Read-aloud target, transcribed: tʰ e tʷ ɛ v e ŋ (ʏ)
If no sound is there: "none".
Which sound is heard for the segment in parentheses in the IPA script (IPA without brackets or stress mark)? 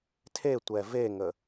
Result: ə